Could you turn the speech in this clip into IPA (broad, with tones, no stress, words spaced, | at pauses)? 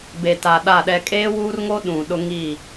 be˨ta˨ ɗa˦˨ɗɛ˦ kʼeː˦wuː˦rŋo˦ ɗũ˨ ɗʊ˦ŋiː˦˨